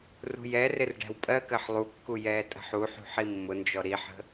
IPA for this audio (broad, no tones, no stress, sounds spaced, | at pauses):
r ṳ j ɛ r ɪ r ɖ æ̤ w pʼ ɜ k ɜ ħ lˠ u kː u j ɛː tʼ ə̤ ħ u ħ ṳ ħ i mː ʊ n d͡ʒ ɔ ɾ i ħ ə̤